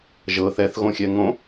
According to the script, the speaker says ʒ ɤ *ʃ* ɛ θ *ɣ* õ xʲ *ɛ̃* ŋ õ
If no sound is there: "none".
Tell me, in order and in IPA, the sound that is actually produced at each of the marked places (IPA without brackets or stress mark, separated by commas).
θ, ɣ, ɛ